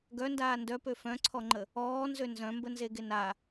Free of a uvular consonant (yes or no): yes